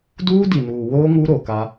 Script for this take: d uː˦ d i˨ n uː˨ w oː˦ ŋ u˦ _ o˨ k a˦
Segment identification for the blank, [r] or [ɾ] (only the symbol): ɾ